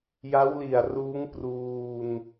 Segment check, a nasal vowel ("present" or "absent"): absent